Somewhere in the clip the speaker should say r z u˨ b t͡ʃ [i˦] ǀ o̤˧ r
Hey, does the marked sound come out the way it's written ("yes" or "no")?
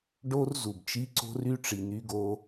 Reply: no